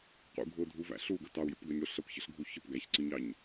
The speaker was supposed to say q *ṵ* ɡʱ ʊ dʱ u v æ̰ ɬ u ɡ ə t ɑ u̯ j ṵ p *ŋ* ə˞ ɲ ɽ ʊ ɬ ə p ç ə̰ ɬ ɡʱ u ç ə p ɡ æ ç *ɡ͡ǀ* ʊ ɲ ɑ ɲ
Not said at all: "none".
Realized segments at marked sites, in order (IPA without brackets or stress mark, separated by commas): ṵ, ɡ, ǀ